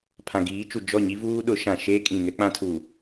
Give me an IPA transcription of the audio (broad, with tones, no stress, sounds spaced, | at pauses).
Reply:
pʰ ã˨ ɡ iː˨˦ t͡ʃ u˨ d͡ʒ ɔ˦˨ ɲ i˦ v uː˦ ɗ ʊ˨˦ ʃ ã˨ ʃ eː˦ kʼ ĩ˨ ŋ ɛ˦ k͡p ã˦ tʰ u˨